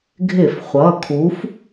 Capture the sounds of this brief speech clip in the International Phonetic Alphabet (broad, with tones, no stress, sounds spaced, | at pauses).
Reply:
ɡʱ ɪ˧˩˧ f χʷ ʌ˩˧˩ kʰ u˨˥ f